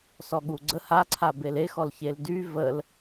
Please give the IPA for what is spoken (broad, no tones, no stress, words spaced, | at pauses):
sɔɠuɡ͡ǀə haǀʰabel exɔlçel dy vəl